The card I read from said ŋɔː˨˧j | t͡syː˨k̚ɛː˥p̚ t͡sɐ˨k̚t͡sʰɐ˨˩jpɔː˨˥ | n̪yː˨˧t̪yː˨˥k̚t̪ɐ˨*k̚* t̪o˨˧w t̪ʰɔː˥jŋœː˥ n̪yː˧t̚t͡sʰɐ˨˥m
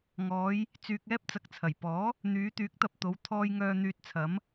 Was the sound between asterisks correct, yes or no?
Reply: no